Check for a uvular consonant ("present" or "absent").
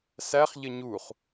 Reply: present